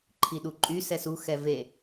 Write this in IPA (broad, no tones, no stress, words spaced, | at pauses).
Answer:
ǃʰiɗuǃʼy sɛsu xɛve